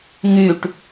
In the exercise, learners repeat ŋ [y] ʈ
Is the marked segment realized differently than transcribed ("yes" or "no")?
no